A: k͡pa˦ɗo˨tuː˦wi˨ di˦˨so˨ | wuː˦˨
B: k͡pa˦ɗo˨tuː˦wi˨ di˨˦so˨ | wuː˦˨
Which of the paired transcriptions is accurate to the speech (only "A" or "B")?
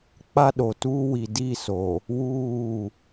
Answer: A